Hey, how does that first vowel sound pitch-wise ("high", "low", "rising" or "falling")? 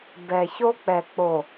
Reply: low